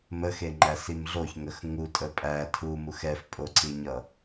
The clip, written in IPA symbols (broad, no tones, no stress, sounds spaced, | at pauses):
m ə x e ŋ͡ǃ æ s i m ɮ o ç ŋ ə x ŋ u tʼ ə pʼ æ tʰ u m u x ɛ f pʼ o ǀ i ɲ ʌ